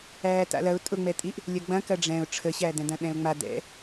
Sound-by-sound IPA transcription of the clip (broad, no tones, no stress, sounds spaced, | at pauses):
æː t a̰ l ɐ ʊ̯ tʼ ʊ ŋ͡m ɛ tʼ i ʔ | lʲ ɐ ɡ͡b ɐ̃ k ɐ ɖ͡ʐ ɛ̃ ʊ̯ ʈ͡ʂʰ ə ɕ æ d ɛ̃ d ɐ̃ ɗ ɛ̃ ʊ̯ ŋ͡m a d ɛ̰